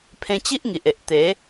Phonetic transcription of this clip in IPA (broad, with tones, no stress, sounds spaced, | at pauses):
pʰ ẽ˧ t͡ɕ i˦ ʔ ŋ i˨ ʔ e˨ ʔ t̪ e˨˦